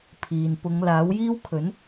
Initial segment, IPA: pʰ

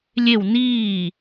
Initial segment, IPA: lʲ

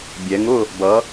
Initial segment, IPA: bʲ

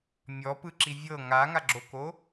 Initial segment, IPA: mʲ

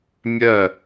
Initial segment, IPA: mʲ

